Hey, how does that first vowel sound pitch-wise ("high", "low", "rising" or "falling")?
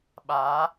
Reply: rising